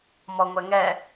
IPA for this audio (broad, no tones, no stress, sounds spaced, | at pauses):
m ɔ ŋʷ ɛ ŋ ɛ